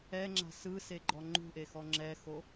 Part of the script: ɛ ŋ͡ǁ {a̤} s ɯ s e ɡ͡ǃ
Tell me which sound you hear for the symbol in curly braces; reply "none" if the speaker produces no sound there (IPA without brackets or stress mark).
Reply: a̤